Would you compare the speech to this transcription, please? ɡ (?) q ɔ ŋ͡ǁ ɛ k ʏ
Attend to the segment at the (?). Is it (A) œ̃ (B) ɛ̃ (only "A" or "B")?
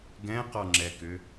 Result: B